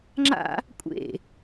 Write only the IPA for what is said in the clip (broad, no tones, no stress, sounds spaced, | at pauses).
ŋ͡ǁ a̰ | kʷʼ ḛ